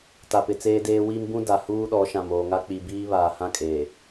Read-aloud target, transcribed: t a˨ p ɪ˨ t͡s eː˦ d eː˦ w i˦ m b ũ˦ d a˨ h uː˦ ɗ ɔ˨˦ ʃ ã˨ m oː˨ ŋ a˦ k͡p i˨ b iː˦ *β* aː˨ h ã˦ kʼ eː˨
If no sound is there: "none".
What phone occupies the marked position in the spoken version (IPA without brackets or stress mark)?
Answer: β